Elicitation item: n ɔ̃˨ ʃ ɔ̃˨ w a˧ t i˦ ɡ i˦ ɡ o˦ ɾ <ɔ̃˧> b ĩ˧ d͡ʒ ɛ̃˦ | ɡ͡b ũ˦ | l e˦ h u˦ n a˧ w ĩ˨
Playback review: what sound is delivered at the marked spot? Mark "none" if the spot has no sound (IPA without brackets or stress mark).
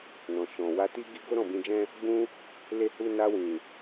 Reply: ɔ̃˦˨